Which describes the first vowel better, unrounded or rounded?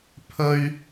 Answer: rounded